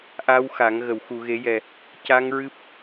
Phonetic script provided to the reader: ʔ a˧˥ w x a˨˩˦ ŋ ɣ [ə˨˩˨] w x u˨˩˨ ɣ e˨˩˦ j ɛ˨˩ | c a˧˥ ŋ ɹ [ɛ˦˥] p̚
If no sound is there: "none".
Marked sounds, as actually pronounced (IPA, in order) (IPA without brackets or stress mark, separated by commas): ə˨˩˨, ɨ˦˥